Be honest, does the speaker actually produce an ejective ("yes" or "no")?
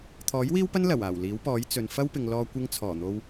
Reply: no